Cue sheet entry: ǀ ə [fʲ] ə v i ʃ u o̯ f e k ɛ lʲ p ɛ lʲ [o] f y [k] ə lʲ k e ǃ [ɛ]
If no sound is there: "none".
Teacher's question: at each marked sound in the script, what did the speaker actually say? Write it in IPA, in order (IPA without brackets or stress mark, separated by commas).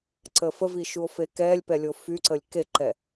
f, o, ǀ, ɛ